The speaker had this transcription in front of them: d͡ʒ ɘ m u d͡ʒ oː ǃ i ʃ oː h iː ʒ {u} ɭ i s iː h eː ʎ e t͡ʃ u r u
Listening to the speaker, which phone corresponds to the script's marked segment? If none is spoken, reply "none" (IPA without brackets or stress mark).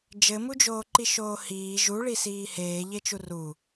u